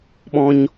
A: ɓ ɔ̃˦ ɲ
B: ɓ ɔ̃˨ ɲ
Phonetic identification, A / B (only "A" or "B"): A